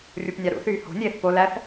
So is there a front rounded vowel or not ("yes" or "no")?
yes